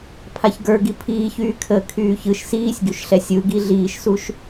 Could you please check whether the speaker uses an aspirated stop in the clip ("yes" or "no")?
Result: yes